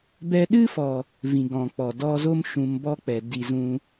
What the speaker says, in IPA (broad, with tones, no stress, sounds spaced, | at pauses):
b ɛ˧ ɗ ɨ˦ f ɔ˨ | v ĩ˨ ɡ ɔ̃˨ k͡p ɔ˨ d ɔ˧ z o˦ m ʃ ũ˧ m b ɔ˦ k͡p ɛ˨ d i˧ z ũ˦